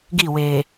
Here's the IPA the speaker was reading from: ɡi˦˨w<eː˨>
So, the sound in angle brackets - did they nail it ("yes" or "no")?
yes